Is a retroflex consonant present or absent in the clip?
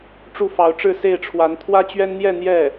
present